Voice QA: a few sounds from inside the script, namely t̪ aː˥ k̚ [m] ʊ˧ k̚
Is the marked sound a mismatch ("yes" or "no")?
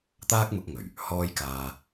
no